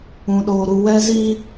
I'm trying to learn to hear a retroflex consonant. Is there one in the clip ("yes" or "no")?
no